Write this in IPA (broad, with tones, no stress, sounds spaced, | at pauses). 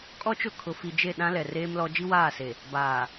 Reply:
kʼ ɔ˦ t͡ʃ ʊ˦˨ kʰ ʊ˨ f i˨ d͡ʒ e˦˨ ɗ ã˦ l ɛ˨ r eː˦ m l ɔ˦ d͡ʒ i˦ w aː˦˨ s e˨ | b aː˨